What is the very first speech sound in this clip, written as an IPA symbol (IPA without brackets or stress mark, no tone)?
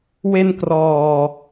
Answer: w